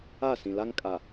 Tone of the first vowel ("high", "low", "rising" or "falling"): falling